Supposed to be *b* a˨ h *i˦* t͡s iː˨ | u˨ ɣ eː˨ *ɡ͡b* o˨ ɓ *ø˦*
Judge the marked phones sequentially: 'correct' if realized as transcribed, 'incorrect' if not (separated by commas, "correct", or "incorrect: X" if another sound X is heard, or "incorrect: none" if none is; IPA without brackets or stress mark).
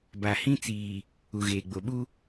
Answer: correct, incorrect: ĩ˦, correct, incorrect: u˦